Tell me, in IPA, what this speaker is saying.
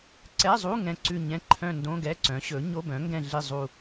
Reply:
ǀ ɛ˧˥˧ zˤ u˧˥˧ ŋ ɛ̃˦˨ ǀ ʉ˦˨ ɲ ɛ̃˧˥˧ ǃʰ œ̃˦˨ n d õ˧˥˧ ɡ ɛ˧˥˧ ǀ œ̃˩˥ ɕ ɵ˩˥ ɲ o˧˥˧ b œ̃˩˥ ŋ ɡ ɛ̃˦˨ ɮ i˦˨ zˤ u˦˨

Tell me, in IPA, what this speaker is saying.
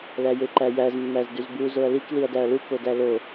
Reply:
l æ j e ǃ æ j æ z mː æ z d y z b u z o ɐ̯ l i k l i ɐ̯ d æ ɐ̯ l u k o d æ l o

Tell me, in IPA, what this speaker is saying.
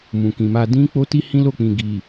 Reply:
m ũ˨ k ĩ˨ m a˧ d ĩ˦ k͡p o˦ t i˦ h ĩ˦ l o˦˨ k͡p ĩ˨ ɡ i˨

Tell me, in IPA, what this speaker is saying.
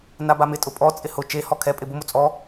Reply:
n a b a m ɪ tʼ ʊ pʼ ɔ t͡sʼ ɪ h ʊ t͡ʃ e h ɔ kʰ ɛ pʼ ɪ b ʊ m o t͡sʼ ɔ

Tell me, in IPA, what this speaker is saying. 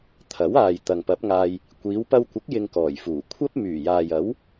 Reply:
t̪ʰ ɐ˨˥ w aː˨ j t̪ ɐ˨ ŋ p ɐ˨˥ p̚ ŋ aː˧ j | kʷ iː˨˧ w p ɐ˧ w kʷ ɪ˨˥ k̚ j ɪ˧ ŋ k ɔː˨˩ j f uː˨˩ kʷʰ ɐ˥ p̚ m yː˨˩ j aː˨ j ɐ˨˥ w

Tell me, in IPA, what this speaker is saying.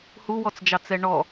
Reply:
h u w ɔ t͡s d͡ʒ ɑ t͡s ɛ ɳ ɔ

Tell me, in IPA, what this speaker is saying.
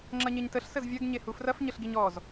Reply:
ŋ͡ǁ ɐ ɲ e ɲ t ə ɬ s ə z vʲ ɐ ɡ ɲ e h u f r ɐ f ɲ ə ɬ ɡ i ɲ ɔ z

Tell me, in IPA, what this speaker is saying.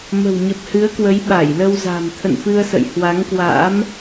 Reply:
m ə̤˨˩ w ɲ ə˨˩ p̚ h ɨ˨˦ ə̯ k w ə˨˦ j ɓ a˧˩ j l ə˧ w z a̤˨˩ m t̪ʰ ə̰˧˨ n f ɨ˧ ə̯ s ə̰˧˨ j h w a˨˦ ŋ k w a̰˧˥ m

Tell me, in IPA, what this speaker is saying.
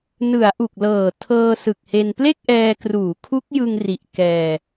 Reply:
n ɯ˩˦ a̯ ʔ u˨˩ k̚ l ɤː˨˩ tʰ ɤː˧ s ɯ˨˩ k̚ h e˧ n p l e˥˩ k̚ ʔ ɛː˧ k r uː˩˦ kʰ u˦˥ k̚ j ɯ˧ ŋ r i˨˩ ʔ k ɛː˧

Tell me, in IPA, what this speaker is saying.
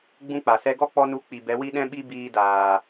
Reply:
ɡ͡b ũ˦ k͡p a˨ s ɛ˦ ɡ ɔ˦ k͡p ɔ˧ n u˨˦ k͡p i˨ b ɛ˨˦ w i˦ ɗ ɛ̃˦ ɓ i˦ b iː˧ d aː˨

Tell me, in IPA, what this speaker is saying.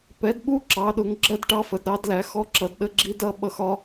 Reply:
p ɛ˨˦ d ɓ u˦˥ ǁ ɑ˨˦ ɗ ʊ˨˦ ŋ ɡ͡ǁ ɜ˦˥ d ʈ ɑ˦˥ f ə˨˦ d ɾ ɑ˨˦ d l æ˨˦ x ɔ˦˥ ǁ ʌ˨˦ d ɗ ə˦˥ ɡ͡ǁ i˦˥ d ʌ˦˥ ɓ ʌ˦˥ x ɒ˦˥

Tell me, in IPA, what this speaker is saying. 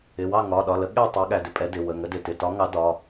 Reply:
ɪ˩˧˩ w ɑ˥˨ ŋ ɒ˩˧˩ ɗ ɒ˩˧˩ l ə˨˥ ɠ ɛ˥˨ tˤ ɑ˨˥ ɠ æ˩˧˩ d ɪ˥˨ pʼ ɛ˨˥ d ɪ˩˧˩ w ə˩˧˩ ŋ ə˨˥ d ɪ˩˧˩ t ɪ˩˧˩ t ɒ˨˥ ŋ ɑ˨˥ d ɒ˩˧˩

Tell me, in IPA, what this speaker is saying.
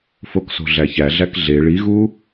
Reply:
f o k s o̤ ɮ æ ç æ ɮ æ k ɮ e ɭ i ɣ u

